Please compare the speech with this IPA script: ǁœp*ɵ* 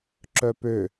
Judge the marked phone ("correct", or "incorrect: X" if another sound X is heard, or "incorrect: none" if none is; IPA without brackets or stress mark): incorrect: ø